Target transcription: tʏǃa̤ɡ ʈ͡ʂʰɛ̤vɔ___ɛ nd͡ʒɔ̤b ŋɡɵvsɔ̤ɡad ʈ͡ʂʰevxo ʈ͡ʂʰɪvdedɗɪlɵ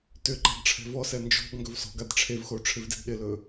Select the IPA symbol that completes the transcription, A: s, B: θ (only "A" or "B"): A